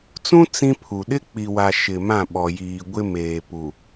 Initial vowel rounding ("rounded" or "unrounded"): rounded